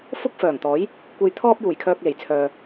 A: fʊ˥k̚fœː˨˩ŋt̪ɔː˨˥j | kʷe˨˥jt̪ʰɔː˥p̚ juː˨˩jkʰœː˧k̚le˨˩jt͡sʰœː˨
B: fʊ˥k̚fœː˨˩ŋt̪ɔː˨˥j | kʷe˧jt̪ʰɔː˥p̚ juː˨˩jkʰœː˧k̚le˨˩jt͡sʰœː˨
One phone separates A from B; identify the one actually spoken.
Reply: B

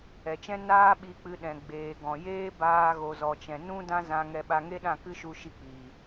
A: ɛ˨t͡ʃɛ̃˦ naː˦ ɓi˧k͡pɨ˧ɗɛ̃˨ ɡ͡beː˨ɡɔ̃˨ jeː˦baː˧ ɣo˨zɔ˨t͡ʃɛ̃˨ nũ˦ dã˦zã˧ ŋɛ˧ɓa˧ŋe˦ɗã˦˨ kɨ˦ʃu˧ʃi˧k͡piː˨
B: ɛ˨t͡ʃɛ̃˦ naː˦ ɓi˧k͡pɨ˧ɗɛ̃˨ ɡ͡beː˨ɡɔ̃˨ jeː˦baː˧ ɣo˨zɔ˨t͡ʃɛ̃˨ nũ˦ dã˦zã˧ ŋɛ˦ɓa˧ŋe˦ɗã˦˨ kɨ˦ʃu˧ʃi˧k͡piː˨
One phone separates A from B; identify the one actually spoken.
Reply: A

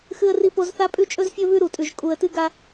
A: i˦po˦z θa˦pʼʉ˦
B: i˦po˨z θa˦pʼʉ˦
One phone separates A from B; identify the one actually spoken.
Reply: A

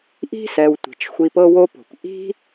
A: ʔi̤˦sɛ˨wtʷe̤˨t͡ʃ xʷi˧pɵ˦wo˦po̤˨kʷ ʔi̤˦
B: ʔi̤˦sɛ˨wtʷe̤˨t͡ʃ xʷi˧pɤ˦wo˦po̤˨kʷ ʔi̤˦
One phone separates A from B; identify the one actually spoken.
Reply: B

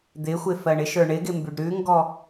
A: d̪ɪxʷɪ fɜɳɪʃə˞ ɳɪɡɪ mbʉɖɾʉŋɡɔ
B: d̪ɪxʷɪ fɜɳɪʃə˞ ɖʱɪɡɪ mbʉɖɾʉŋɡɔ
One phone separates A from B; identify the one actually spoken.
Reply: A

